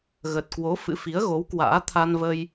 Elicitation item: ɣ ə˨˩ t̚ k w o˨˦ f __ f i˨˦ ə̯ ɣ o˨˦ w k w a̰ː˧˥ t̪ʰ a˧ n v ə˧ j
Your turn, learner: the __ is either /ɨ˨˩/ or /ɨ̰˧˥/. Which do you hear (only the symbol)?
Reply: ɨ̰˧˥